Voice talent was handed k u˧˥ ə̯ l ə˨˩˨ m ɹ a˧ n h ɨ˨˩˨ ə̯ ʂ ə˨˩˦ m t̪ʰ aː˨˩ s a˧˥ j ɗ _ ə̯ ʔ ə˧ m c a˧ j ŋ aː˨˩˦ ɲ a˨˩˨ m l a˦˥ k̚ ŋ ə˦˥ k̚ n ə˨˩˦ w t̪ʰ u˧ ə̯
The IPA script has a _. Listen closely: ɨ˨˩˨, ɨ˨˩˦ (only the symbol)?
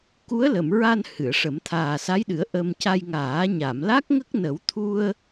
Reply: ɨ˨˩˦